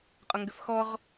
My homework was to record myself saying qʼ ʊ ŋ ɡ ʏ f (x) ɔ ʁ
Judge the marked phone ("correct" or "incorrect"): correct